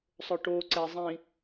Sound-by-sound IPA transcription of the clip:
sˤ ɵ ʈ o ǀ ɛ zˤ ĩ

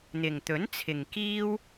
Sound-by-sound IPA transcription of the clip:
n̪ ɪ˨ ŋ t̪ ɵ˨˥ n t͡sʰ ɪ˨ ŋ k iː˥ w

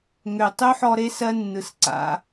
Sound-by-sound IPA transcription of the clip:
ŋ ø˨ tˤ ø˦ ħ ɔ˧ ɾ e˦ s ɜ˦ nː ɯ˨ s ǀ a̰˨˦

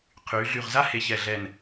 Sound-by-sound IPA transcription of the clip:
qʰ yː˩˧ ɮ y˧˩ ʁ z a˥ h e˧ ç ɛ˧˩ ɮ ɛ˧˩ n

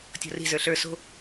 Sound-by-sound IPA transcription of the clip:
tʲ ɔ̤ r i̤ z ə˞ ɬ ə˞ s o̤

